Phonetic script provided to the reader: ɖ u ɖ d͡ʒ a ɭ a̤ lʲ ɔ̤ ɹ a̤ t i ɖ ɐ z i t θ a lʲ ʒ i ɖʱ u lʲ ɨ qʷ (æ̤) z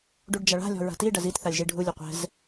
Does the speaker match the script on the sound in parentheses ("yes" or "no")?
no